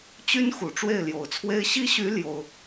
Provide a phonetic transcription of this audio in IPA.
t͡ɕ y˥ n x u˨˩ ʈ͡ʂ w e˥˩ ɪ̯ l j o˨˩ ʊ̯ t͡sʰ w e˥ ɪ̯ ɕ i˥ ɕ y˧˥ l j o˥ ʊ̯

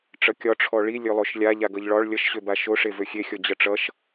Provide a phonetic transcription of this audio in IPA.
ʈ͡ʂ ʌ kʲ ɒ ʈ͡ʂʰ ɔ ɭ i lʲ ø lˠ o ʃ lʲ a ʎ a ɡ ʌ ʎ ɭ ɒ ɭ lʲ ʌ ʃ ɕ ø b a ʃ o ʂ e v ø xʲ e xʲ ɔ d͡ʑ ʌ ʈ͡ʂ ʌ ʃ

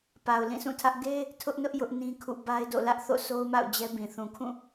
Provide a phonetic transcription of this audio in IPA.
p a˨ ʊ̯ l ĩ˦˨ sʰ ũ˦˨ tʰ ä˦ ʔ ɡ e˦ | tʰ ʊ˦ ʔ n ʊ˦ ʔ j ʊ˦ ʔ n ĩ˦ kʰ ṵ˦˨ b a˦ ɪ̯ d o̰˦˨ l ä˦ ʔ θ o̰˦˨ sʰ o˦ ʊ̯ m a̰˦˨ ʊ̯ d͡ʑ ɛ˦ b ĩ˨ θ ũ˨ kʰ ũ˦˨

